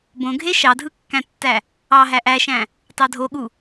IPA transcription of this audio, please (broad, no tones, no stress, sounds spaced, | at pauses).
b õ ɡʱ e ʃ ɑ dʱ ɯ kː æ̃ tː æ | ɑ ɦ æ ʔ æ ʃ æ̃ | t ɑ dʱ o ɠ u